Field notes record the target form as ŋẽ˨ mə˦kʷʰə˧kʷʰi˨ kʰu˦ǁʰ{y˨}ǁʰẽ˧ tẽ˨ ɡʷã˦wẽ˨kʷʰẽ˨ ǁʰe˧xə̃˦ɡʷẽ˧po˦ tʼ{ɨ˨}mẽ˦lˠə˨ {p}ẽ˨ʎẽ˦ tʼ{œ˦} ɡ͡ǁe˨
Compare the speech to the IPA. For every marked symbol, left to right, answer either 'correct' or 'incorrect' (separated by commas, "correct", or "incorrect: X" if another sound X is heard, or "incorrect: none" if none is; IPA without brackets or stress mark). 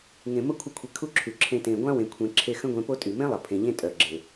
correct, incorrect: y˨, incorrect: pʰ, incorrect: œ˨